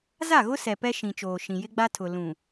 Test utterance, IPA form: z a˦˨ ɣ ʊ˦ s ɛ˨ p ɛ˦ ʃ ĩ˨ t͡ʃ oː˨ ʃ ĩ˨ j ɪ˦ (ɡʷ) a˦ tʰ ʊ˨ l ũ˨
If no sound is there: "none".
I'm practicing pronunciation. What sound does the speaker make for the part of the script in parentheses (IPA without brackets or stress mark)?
ɡ͡b